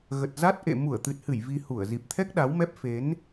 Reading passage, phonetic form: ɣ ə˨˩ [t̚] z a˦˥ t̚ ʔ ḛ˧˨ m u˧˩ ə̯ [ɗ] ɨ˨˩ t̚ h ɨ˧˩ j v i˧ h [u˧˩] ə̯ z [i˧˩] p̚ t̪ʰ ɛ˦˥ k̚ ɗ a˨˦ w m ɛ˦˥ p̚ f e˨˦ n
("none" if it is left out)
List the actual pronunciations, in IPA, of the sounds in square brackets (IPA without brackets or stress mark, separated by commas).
t̚, t̪, u˧˩, i˨˩